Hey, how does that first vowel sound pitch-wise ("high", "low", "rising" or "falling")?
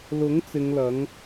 rising